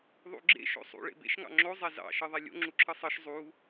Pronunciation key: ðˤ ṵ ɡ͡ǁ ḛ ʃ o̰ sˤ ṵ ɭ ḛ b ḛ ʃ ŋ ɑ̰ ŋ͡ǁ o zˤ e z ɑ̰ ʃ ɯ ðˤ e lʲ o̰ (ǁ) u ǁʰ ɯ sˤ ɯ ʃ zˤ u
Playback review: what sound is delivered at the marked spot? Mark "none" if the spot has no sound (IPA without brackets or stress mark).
ŋ͡ǁ